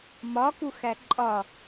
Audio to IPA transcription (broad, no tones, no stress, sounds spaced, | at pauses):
m ɒ k u x æ ǃʼ ɒ